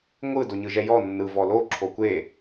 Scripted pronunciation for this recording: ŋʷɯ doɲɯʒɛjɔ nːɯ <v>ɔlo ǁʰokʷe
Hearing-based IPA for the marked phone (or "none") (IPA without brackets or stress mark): v